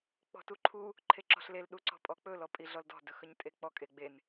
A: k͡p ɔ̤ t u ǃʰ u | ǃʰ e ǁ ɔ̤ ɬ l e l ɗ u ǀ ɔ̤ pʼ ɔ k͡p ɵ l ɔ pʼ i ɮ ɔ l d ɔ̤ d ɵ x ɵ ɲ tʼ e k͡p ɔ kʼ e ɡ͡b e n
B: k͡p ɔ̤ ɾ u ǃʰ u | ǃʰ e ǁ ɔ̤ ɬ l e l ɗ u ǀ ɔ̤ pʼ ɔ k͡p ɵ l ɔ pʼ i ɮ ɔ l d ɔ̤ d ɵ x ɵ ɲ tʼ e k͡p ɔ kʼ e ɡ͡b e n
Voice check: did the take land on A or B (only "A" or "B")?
A